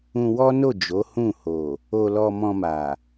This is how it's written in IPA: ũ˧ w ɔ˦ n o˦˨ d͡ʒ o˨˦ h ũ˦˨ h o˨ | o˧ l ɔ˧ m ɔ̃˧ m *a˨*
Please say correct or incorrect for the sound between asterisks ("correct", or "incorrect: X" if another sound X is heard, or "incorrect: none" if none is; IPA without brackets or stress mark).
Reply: correct